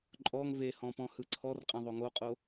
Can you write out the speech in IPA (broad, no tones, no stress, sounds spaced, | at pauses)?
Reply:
ǃʼ ɔ ŋ v e h ɔ̃ p ɔ̃ h ɯ ǀʰ ɔ r qʼ ɛ̃ ðˤ o ŋ o qʼ o